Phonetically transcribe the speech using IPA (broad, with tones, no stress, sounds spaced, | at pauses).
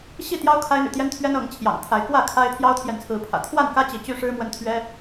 ɕ i˥˨ t̪ j ɑ˦ ʊ̯ kʰ a˦ ɪ̯ n̪ y̰˨˩ t̪ j ɛ˦ n t̪ʰ ɥ ɛ˦ n ɤ˨˦ ŋ t͡ɕʰ j ɑ̰˨˩ ŋ t̪ʰ a˨˦ ɪ̯ k w ä˥˨ kʰ a˦ ɪ̯ t̪ʰ j ɑ˦ ʊ̯ t̪ʰ j ɛ˨ n t͡sʰ ɹ̩˨˦ pʰ ä̰˨˩ t̪ʰ w a˥˨ n k ä˦ t͡ɕ i˨˦ t͡ɕ y˦ ʂ ɻ̩˦ m w ə˦ n t̪ʰ ɥ ɛ˦